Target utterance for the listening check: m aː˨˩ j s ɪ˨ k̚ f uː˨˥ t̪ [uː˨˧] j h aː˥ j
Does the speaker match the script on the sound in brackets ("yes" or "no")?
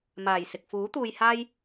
no